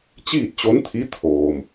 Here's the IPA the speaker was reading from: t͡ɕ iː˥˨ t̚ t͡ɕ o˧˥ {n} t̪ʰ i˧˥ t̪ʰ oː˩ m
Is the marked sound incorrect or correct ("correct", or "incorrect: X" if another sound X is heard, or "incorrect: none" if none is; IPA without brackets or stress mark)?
correct